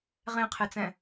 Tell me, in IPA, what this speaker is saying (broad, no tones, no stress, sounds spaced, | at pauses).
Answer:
ʁ ẽ qʰ e t͡s ɛ̃